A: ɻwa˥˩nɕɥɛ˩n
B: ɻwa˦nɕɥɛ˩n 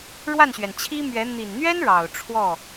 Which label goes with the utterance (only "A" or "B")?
A